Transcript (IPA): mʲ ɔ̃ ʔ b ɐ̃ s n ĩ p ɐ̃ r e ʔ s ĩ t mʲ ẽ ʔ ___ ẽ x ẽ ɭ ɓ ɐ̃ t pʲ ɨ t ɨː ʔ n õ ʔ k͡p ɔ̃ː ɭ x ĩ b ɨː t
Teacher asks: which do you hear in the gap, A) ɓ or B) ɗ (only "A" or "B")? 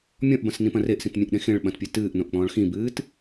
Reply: B